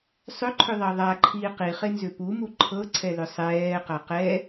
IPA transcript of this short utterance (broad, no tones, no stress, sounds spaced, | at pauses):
sˤ ʏ ǃʰ ʏ ðˤ ɑ ðˤ a ǃʰ iː q i χ e n z ʏ p u m u ǃʰ ɤ ǀʰ ɛ l ʏ sˤ ɛː q a q ɛ